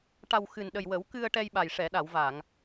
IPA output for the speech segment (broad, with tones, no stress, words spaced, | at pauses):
ʈa˨˩w xɨ˨˩nɗə˨˩jwə˨˩˦w kɨ˧ə̯ʈɛ˧jɓa˨˩j ʂɛ˨˩˨ɗa˨˩˨wva˨˩˨ŋ